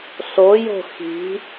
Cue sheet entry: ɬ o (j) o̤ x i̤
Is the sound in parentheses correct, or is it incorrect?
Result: correct